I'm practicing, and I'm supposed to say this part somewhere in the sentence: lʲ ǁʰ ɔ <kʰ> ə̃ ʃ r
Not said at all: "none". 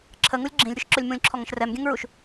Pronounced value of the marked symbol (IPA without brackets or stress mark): ŋ